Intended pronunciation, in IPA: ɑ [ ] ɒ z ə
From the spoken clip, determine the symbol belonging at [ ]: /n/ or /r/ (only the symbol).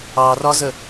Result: r